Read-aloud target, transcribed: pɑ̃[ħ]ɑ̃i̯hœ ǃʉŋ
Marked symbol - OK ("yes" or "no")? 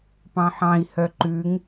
yes